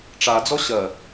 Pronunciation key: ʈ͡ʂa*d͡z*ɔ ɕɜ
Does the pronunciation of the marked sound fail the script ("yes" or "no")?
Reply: no